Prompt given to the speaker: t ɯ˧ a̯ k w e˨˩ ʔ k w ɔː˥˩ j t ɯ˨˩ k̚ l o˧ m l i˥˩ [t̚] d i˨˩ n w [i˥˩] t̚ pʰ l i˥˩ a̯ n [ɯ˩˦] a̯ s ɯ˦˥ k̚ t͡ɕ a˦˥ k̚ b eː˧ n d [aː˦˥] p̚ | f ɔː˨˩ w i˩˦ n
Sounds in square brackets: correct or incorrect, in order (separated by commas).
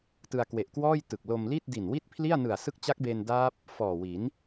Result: correct, correct, incorrect, correct